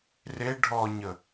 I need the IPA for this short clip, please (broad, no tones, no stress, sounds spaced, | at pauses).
r e ɖʱ ɔ ɲ ə